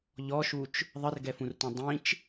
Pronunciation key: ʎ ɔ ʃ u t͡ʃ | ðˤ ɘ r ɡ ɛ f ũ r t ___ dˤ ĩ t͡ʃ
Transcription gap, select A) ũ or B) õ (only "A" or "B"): B